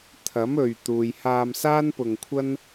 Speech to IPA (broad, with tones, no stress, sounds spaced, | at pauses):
t̪ʰ ɐ˨˥ m ɵ˨ ɥ t̪ uː˨ j h aː˧ m s aː˥ n p ʊ˧ ŋ kʷʰ ɐ˥ n